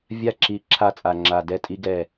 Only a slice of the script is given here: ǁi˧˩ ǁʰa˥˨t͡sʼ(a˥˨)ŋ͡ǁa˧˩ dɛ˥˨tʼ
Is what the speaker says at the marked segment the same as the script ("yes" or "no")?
no